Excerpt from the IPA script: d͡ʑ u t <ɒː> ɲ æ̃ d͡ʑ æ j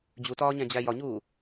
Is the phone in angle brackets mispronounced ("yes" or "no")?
no